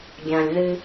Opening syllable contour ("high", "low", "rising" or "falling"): low